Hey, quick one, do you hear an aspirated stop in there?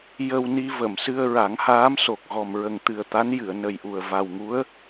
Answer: no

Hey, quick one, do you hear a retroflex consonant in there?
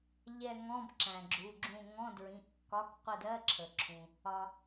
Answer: no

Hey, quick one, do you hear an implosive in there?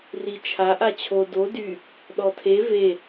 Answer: yes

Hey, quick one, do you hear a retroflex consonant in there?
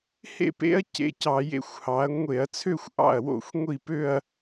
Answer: no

